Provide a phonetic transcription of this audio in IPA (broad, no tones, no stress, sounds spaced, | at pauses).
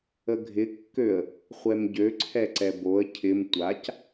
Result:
ə ɡʱ ɪ kː ø ə̯ | χʷ ɛ m ɟ ø ǀʰ ɛ ǀ ɛ b o ə̯ cʰ ɪ m tʷ a c